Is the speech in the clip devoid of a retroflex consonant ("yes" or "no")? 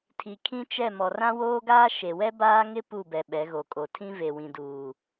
yes